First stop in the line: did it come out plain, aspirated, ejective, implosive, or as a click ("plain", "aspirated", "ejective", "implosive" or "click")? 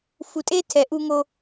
ejective